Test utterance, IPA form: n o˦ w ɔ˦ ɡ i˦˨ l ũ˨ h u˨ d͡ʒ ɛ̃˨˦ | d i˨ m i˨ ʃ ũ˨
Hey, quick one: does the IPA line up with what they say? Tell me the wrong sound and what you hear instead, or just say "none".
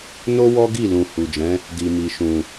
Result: none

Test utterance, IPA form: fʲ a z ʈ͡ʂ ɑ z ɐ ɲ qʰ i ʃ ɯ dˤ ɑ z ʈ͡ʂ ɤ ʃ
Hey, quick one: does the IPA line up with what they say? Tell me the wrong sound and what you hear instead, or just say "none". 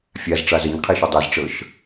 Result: none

